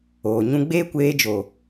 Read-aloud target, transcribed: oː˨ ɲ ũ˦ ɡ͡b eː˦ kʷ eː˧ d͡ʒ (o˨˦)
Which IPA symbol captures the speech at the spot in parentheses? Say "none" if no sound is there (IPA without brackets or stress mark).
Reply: o˨